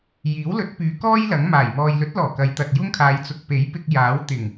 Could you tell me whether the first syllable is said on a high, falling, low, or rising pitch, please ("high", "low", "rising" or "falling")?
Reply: rising